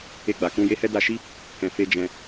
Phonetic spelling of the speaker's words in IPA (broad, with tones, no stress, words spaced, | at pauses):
e˧ɡ͡ba˨kũ˧ je˧hɛ˧ da˧ʃi˦ | kɛ̃˨fe˧d͡ʒɛ̃˧